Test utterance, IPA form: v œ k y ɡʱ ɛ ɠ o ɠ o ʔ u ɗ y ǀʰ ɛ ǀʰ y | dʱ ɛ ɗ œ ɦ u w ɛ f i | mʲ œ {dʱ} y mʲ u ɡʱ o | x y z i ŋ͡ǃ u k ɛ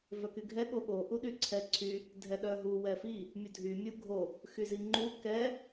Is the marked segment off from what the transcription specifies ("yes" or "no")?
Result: no